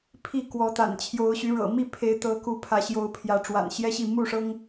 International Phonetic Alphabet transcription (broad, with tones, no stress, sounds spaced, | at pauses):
pʰ i˥˨ k w ɔ˨˦ t̪ a̰˨˩ n t͡ɕʰ j o˨˦ ʊ̯ ɕ y˨˦ ɻ ɤ̰˨˩ m i˥˨ pʰ e˨˦ ɪ̯ t̪ ɤ˨˦ k u˨˦ pʰ ä˨˦ ɕ j o˨˦ ʊ̯ pʰ j ä˨˦ ʈ͡ʂ w a̰˨˩ n ɕ j ɛ˦ ɕ i˥˨ m u˥˨ ʂ ɤ˦ ŋ